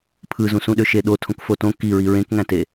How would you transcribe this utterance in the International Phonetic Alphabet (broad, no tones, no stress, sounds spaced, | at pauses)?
pʰ ɯ z ũ s ũ ɗ ø ʃ e ɗ o tʰ õ k f o t õ k i ɹ i ɹ ẽ k ŋ æ̃ t e